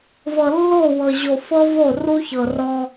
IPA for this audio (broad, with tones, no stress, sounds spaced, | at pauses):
v ɤ˨ lː o˦˨ w ɤ˨ ʑ o˨ f ɤ˦ v o˦˨ r u˦ ç ɤ˨ r ɔ˦